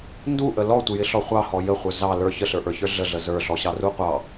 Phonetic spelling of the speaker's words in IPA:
n d u ʔ ə l ɔ tʷ ɪ j ɪ ɬ ɔ χʷ ɑ h ɔ j ə χʷ ə˞ z ɑ l ə˞ ç ə ɬ ə˞ ʔ ə˞ ç ə˞ ɮ ə ɮ ə z ə˞ ɬ ɔ ɕ ɑ r u qʷ ɑ

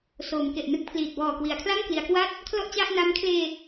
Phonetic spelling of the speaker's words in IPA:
s oː˩˦ m k e˨˩ ʔ n ɯ˦˥ k̚ pʰ l iː˨˩ t̚ b ɔː˨˩ k w i˩˦ a̯ kʰ l a˥˩ ŋ k l i˩˦ a̯ k w a˥˩ t̚ | kʰ l ɔ˥˩ ʔ t͡ɕ a˥˩ ʔ n a˦˥ m kʰ l eː˧

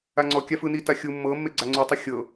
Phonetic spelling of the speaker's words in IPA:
a ŋ͡ǀ ɔ kʲ a f ɯ n i t a xʲ u mː ɤ mː e ɡ͡ǀ a ŋ͡ǀ u tˤ o xʲ ɤ

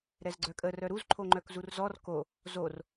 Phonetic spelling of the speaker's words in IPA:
ɾ ɛ z ɡ͡ǀ œ kʼ ə r œ ɾ u z ǃʰ o ŋ͡ǃ œ k z u r z ɔ r k o | z o r

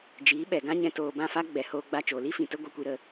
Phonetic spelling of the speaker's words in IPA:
d͡ʒ iː˨˦ ɓ ɛ˨ ɡ ã˦ ɲ ɛ̃˧ t oː˧ b ã˦˨ f a˦ ɡ͡b ɛ˨ h oː˧ ɡ͡b a˧ t͡ʃ oː˨ l i˦ f ĩ˨ t ə˦ ɡʷ e˧ kʷ i˧ ɾ ə˧

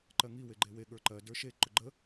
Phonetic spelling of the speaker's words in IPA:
ǃ ɜ ŋ i w e ɡ͡ǃ e w e ɠ ə˞ ǃ ɜ d ə˞ ʃ e ǃ ʊ ɡ͡ǃ ə

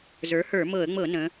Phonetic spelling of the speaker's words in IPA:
z ə˞˩˥ h ə˞˧˩˧ m ɤ˧˩˧ ə̯ ŋ͡m ɤ˧˩˧ n ə̃˩˧

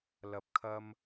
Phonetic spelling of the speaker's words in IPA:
l ɐ˨˥ p̚ kʰ ɐ˧ m

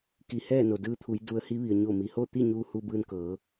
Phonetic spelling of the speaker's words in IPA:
k i˧ h ɛː˥˨ n o˩ d ɯː˧ t̪ʰ u˩˧ j d u˧ ə̯ h i˧˥ ʋ i˩ ə̯ ɲ o˧˩ m i˩ h o˥˨ t̪ i˥˨ ɲ uː˧ h u˧ b ɯː˧ n k ɤː˩˧

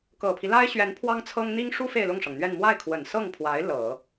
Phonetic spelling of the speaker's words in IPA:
k ɤ˨˩ pʰ i˦ l a˥ ɪ̯ ɕ ɥ ɛ˧˥ n pʰ w ɑ˥ ŋ t͡sʰ ɤ˥ ŋ n̪ i˥ ŋ ʂ u˥ f e˥˧ ɪ̯ l ʊ˥˩ ŋ ʂ ɤ˩ ŋ n̪ ɥ ɛ˥˧ n m w a˥˩ ɪ̯ kʰ w ə˨˩ n s ɤ˥˩ ŋ pʰ w a˧˥ ɪ̯ l ɤ˨˩˦

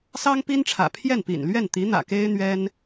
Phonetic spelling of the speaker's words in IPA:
s ɑ˥ ŋ p i˥ n ʈ͡ʂʰ ä̰˨˩ pʰ j ɛ˥˩ n p ḭ˨˩ n l ɥ ɛ˥˩ n t̪ i˧˥ n̪ ä̰˨˩ k e˥ ɪ̯ n̪ ɥ ɛ˥ n

